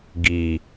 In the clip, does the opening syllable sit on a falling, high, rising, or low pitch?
low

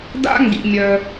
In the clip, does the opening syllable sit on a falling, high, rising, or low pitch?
high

